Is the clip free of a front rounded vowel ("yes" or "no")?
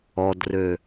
no